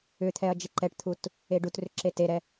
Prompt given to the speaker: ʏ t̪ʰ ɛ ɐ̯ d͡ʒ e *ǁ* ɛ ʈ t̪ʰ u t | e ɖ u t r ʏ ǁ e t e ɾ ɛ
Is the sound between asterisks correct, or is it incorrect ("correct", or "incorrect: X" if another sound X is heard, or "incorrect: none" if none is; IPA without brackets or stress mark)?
incorrect: ǃ